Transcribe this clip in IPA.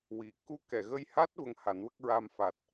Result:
wi˨˩˨ ku˧˥kɛ˨˩˨ɣə˧jha˦˥t̚ və˧ŋha˨˩˦nwə˦˥k̚ ɹa˧mfa˨˩t̚

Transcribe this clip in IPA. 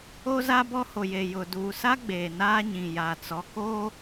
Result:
o˦za˦ bɔ˦ho˨je˨jʊ˨ duː˨sa˦ ɡ͡beː˨naː˦ɲĩ˨ ja˨t͡sɔ˨koː˦

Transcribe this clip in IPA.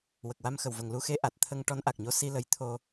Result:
wə˨˩k̚wa˧m xə˨˩w və˨˩ŋ lu˧˥xe˧˥ ʔa˨˩t̚t̪ʰə˧ŋ ʈɔ˧˥nʔa˨˩k̚ɲo˧˥ si˧lə˧˥jt̪ʰo˧

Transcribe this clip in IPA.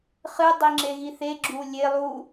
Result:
χɨ dˤiŋ͡ǁeɣiθe ɡ͡ǁulʲe lˠu

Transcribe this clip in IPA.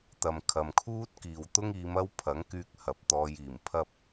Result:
t̪ɐ˨mkʰɐ˨mkʰuː˥t̚ kiː˨wt̪ʊ˥ŋiː˨˧mɐ˥w pʰɐ˨˥ŋkyː˧k̚ hɐ˨p̚t̪ɔː˧jiː˨˩mpʰɐ˥p̚

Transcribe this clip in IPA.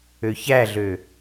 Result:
øçæɮø

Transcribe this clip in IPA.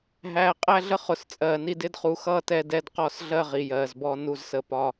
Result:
ɦæː˨qʼæ˦ɮə˦ χʊ˨s t͡sʼɜː˨ni˦ dɪ˦dχu˨xʌː˦ tɛ˦dɛ˦d qɔ˦sɮɜ˦ ʁi˨jɜː˨zbɔ˦ nu˦zsə˦pɒ˦

